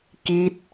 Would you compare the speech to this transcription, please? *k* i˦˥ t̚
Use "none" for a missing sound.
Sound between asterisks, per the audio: k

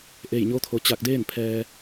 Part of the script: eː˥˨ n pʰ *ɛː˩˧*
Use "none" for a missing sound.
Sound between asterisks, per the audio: ɛː˧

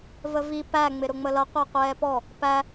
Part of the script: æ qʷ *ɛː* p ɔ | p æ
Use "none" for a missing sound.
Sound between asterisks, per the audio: ɛː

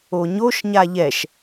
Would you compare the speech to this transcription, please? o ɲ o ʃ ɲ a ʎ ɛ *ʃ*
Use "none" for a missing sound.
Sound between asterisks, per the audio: ʃ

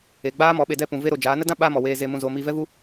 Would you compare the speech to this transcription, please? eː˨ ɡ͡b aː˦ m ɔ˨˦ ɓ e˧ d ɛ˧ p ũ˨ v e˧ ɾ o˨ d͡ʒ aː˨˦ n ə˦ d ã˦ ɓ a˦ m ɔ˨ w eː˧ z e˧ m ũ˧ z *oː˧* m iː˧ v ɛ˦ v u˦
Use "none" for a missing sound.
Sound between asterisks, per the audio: oː˧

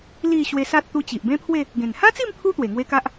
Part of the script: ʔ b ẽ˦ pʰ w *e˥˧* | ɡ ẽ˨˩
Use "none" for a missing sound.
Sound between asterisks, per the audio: e˥˧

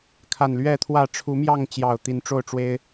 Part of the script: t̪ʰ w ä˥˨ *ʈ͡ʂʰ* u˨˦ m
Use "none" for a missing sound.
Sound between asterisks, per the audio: ʈ͡ʂʰ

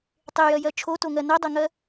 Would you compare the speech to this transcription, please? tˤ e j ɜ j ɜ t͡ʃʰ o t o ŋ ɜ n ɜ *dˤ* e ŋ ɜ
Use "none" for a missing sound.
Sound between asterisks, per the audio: dˤ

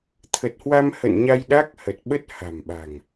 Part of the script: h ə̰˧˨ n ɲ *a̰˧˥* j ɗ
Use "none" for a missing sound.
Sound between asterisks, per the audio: a˧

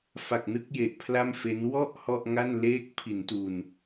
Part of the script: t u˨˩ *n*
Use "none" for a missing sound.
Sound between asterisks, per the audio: n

